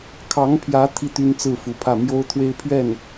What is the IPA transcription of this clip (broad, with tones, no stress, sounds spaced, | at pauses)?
kʰ ɑ˧˥ ŋ pʰ j ä˧˥ t̪ʰ i˥˩ t̪ y˥ n t͡s ɹ̩˥˩ f u˧˥ pʰ ä˥˩ m j o˥ ʊ̯ t̪ʰ w e˥ ɪ̯ pʰ ɥ ɛ˥˩ n